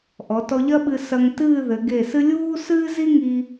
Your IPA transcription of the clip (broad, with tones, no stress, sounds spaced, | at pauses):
ʔ ɔ˩˧ t ɔ˧ ʎ ɐ˥ ɓ ɨ˧ s ɐ˧ ŋ t ɨː˥˧ ð ɘ˩˧ ɡ e˧˩ s ɨ˥ lʲ uː˥ s ɨː˥ z i˥ ŋ i˧